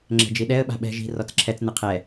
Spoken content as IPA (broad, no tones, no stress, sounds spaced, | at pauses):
ŋ͡ǁ ɛ̤ d͡ʒ i ɗ ɛ ə̯ ɓ a̤ ɓ ɛ̤ ʒ i̤ r ɔ t͡s ǁʰ ɛ t͡s n ɨ qʰ ɛ